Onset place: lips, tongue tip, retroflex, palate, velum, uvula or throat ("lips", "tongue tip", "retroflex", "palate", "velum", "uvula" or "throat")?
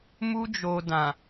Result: lips